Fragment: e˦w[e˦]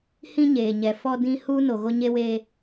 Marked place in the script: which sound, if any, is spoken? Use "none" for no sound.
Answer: eː˦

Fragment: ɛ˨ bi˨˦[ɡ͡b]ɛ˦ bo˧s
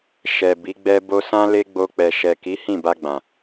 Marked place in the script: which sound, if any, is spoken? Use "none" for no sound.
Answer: ɡ͡b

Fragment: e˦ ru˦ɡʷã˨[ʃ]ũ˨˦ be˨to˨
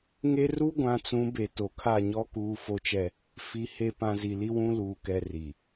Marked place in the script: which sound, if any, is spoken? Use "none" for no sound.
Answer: t͡s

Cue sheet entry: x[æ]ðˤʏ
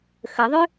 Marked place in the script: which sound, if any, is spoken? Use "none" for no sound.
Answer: ə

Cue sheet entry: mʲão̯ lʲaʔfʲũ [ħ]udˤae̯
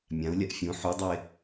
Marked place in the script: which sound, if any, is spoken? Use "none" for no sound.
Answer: ħ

